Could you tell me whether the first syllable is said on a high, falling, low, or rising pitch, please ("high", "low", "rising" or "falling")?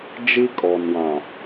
high